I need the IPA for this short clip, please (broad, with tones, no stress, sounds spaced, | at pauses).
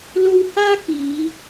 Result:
l o˧ w h aː˥ k iː˨˧